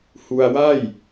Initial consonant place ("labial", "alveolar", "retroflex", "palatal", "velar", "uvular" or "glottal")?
glottal